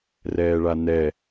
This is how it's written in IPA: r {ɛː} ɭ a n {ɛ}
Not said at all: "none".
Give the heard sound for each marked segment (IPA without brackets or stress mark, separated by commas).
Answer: ɛː, ɛ